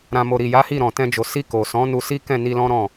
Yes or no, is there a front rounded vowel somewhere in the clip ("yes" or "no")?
no